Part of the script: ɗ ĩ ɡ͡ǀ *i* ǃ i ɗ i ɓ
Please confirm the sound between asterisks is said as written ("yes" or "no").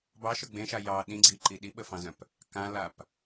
yes